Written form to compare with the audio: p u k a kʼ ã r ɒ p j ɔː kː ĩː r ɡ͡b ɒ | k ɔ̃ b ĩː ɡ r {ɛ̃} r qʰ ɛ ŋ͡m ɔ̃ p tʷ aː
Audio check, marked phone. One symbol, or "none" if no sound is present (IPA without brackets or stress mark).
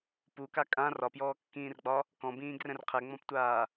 ɛ̃